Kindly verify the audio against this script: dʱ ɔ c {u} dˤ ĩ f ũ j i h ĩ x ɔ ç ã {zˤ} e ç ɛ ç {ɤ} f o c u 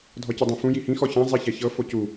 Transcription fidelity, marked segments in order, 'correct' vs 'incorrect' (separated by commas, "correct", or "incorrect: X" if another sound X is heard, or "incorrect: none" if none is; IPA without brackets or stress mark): incorrect: ɯ, correct, correct